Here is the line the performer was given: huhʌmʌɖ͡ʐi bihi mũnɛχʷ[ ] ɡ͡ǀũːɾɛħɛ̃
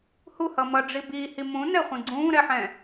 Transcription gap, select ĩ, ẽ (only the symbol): ĩ